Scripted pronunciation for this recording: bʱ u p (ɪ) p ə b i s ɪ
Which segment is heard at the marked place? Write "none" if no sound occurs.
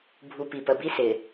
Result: i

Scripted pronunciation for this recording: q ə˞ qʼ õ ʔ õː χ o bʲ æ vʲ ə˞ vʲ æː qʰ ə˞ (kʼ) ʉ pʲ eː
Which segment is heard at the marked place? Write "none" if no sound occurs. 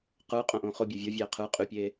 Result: qʼ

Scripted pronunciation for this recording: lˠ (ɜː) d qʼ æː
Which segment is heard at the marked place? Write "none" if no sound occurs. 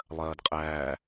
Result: ɜː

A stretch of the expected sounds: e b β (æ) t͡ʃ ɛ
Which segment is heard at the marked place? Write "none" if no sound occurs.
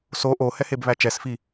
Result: æ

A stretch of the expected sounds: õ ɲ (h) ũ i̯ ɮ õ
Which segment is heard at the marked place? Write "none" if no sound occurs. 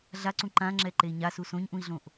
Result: ʔ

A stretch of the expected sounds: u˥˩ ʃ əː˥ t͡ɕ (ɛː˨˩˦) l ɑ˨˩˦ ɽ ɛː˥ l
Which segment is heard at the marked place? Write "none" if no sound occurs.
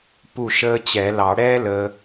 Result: ɛ˨˩˦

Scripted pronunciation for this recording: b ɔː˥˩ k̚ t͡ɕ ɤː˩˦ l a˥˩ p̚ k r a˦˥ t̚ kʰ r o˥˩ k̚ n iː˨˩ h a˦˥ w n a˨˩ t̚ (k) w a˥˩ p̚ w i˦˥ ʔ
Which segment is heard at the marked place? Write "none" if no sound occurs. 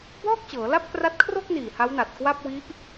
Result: k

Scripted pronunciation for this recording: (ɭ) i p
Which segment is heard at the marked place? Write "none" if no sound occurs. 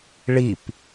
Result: ɭ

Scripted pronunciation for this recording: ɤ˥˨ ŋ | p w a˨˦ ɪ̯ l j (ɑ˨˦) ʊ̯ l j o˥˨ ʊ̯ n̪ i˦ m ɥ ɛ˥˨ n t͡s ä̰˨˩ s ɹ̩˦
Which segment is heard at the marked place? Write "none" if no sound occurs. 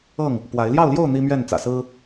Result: ɑ˥˨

